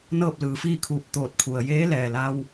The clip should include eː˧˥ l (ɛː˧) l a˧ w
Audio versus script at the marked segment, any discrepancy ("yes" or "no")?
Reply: yes